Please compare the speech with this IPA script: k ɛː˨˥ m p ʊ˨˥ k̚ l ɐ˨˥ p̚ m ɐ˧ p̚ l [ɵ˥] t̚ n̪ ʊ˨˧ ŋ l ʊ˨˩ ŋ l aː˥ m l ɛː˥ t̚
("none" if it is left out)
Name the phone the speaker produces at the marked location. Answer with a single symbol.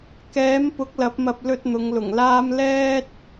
ɵ˧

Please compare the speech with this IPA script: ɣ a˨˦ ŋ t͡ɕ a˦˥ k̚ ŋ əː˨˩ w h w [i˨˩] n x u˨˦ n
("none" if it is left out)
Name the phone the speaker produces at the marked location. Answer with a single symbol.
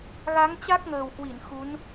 i˧˩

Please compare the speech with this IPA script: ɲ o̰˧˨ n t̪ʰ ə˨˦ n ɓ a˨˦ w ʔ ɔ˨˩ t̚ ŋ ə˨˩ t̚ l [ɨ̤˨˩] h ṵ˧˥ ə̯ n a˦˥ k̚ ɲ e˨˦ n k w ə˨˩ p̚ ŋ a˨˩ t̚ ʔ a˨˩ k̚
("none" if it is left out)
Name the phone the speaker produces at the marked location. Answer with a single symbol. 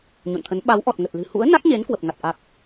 ɨ̤˨˩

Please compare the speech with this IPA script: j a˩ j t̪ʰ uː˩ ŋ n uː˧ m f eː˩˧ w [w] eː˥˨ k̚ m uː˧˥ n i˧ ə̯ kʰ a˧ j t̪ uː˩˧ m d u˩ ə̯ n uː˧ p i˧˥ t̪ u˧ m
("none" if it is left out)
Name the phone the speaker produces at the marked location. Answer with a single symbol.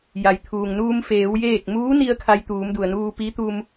j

